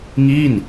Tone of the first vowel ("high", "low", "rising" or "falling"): falling